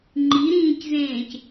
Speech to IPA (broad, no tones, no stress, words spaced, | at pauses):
ŋ͡ǃiɾĩːczẽːc